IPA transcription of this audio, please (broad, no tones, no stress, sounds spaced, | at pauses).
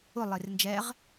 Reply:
ʊ lˠ e r n d͡ʒ ɛ ʁ